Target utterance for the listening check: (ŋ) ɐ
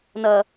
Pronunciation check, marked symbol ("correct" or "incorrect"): incorrect